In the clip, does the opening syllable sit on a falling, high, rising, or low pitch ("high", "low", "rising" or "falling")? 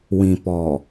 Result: low